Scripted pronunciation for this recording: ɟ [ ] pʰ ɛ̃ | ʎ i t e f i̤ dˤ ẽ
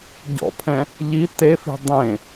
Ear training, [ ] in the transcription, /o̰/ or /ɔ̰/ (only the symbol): ɔ̰